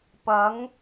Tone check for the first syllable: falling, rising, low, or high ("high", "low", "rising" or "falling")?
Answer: rising